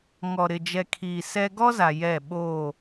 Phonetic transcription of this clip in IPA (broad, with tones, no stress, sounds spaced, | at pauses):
ŋ ɔ˨ ɾ ɪ˨ d͡ʒ ɛ˨ kʰ iː˨ s ɛ˦ ɡ ɔ˦ z a˨ j ɛ˦˨ ɓ oː˦˨